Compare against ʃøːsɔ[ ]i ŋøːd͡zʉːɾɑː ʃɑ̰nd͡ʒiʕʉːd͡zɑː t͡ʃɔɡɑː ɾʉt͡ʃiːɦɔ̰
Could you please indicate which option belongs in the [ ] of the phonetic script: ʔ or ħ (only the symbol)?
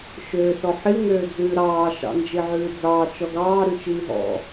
ħ